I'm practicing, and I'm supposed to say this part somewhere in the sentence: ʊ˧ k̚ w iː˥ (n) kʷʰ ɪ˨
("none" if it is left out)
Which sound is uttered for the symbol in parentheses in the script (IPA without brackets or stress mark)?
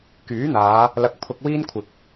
n